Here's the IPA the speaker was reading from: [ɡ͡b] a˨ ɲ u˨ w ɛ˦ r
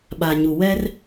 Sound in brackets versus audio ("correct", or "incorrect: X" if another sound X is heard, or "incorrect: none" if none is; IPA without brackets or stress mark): incorrect: ɓ